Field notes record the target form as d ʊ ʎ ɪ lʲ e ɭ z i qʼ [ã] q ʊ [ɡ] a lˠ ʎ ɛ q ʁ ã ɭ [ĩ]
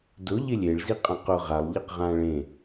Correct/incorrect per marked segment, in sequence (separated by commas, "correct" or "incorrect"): correct, incorrect, incorrect